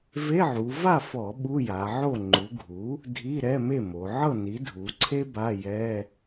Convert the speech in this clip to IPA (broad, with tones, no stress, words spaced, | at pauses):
ve˧˥˧ʕu˩˧ va˥˨fɔ˧˩˧ ɓu˧˥˧ja˩˧ʕo˥˨ ŋ͡ǃu˩˧ɡʱu˩˥ | dʱi˧˥˧ɾɛ˧˥˧me˥˨mo˩˧ ʕɤ˥˨ni˩˥ dʱu˩˧ǀʰe˥ ba˧˥˧jɛ˧˥˧